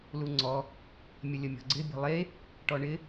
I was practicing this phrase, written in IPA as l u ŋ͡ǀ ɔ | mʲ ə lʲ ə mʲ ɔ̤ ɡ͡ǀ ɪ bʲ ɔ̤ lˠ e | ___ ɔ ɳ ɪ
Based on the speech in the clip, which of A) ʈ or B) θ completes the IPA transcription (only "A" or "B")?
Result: A